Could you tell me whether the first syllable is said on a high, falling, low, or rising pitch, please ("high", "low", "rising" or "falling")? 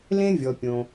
high